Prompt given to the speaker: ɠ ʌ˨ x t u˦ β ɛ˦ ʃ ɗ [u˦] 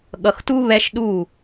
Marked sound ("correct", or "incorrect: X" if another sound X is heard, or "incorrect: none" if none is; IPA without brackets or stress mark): incorrect: u˦˨